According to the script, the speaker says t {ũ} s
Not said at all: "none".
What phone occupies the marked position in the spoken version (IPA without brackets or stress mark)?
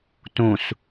ũ